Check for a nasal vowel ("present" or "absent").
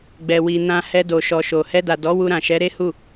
present